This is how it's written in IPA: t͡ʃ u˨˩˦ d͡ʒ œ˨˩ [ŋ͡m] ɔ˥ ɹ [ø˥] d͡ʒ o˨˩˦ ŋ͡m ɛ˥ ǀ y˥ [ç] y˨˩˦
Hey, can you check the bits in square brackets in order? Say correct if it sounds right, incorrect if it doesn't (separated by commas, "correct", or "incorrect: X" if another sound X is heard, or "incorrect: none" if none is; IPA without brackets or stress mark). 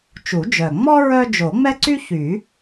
correct, incorrect: œ˥, correct